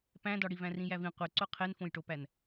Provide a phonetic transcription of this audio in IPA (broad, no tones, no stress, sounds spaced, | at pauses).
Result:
p æ̃ d ɒ ɽ i v æ̃ r ĩ j æ v ĩ qʷ e ǀ o qʰ e n f õ j ʈ o p æ n